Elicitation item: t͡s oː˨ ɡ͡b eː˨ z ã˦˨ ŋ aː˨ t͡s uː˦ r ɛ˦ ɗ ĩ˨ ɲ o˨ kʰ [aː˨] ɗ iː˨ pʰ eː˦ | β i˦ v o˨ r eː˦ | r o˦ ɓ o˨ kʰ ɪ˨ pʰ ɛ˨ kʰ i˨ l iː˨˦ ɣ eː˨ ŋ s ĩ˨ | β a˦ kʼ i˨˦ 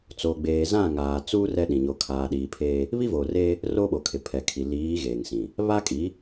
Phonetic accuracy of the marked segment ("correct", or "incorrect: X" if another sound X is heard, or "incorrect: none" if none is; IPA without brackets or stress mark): correct